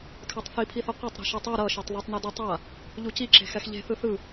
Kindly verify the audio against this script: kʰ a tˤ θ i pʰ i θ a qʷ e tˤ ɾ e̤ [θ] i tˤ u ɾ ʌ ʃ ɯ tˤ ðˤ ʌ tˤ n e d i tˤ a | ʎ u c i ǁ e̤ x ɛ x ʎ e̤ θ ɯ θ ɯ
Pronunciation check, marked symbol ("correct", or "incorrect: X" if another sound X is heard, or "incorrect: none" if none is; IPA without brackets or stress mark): incorrect: ʃ